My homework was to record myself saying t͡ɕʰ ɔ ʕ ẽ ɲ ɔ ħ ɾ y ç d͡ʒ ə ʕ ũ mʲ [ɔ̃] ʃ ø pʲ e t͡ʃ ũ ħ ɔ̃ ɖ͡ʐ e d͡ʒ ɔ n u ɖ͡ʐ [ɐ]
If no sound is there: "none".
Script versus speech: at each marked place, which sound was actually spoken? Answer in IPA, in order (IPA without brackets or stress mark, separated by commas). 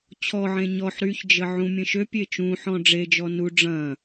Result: ə̃, ɐ̃